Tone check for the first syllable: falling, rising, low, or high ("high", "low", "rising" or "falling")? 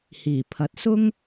low